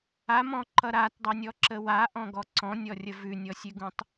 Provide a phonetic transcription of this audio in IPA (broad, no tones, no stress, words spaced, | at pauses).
amɔ̃ǃʌ ɾatdˤʌnʲɔǁə waʔɔ̃ɡɔ ǀɔ̃nʲɔrʲə vʉnʲɔsʲʉɡũtˤ